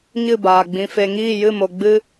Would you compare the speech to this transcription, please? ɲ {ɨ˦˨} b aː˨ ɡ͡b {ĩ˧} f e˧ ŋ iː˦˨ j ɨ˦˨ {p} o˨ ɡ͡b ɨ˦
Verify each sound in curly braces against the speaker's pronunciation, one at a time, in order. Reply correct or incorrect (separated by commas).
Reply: correct, correct, incorrect